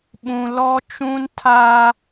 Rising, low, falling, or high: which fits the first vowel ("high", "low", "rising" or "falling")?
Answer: high